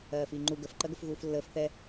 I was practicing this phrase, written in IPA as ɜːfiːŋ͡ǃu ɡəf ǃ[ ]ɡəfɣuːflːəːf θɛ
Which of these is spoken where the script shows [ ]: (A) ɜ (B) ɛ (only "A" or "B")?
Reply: A